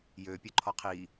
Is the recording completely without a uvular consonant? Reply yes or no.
no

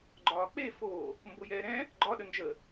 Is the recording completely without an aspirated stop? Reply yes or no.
yes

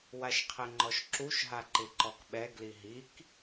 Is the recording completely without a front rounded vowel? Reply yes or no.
yes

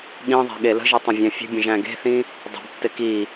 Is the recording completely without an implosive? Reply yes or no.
no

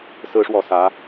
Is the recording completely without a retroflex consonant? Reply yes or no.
no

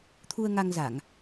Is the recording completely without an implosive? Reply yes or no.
yes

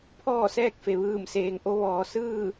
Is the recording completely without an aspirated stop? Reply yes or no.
no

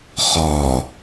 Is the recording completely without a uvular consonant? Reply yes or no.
no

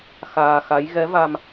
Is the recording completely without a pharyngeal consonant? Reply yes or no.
yes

